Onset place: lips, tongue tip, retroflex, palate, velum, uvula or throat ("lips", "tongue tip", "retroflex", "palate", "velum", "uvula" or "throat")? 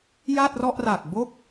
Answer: palate